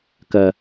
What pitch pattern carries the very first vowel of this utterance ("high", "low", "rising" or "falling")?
low